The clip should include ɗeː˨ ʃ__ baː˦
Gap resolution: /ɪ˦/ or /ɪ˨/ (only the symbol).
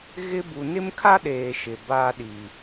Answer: ɪ˨